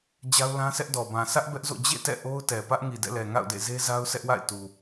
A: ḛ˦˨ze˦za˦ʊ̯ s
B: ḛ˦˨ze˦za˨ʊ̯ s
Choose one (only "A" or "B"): A